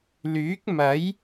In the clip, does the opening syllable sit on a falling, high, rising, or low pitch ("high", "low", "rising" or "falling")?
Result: rising